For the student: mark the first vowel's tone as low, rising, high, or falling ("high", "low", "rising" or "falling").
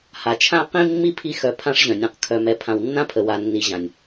low